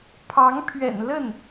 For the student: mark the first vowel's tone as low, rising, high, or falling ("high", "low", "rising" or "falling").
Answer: rising